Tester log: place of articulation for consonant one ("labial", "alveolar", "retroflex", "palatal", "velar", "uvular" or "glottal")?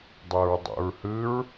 alveolar